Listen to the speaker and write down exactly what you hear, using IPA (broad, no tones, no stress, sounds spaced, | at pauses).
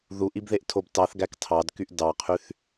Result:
ð u ʔ i b ð e ʔ tʰ o b t ɑ θ ɡ æ k tʰ ɑ d k y ʔ d ɑ qʰ y θ